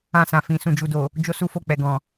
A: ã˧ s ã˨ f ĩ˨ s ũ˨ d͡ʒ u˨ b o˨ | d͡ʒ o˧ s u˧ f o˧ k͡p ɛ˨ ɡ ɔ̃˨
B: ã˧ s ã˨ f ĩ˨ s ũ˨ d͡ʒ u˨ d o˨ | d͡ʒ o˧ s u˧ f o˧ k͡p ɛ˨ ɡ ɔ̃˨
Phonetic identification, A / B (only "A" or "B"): B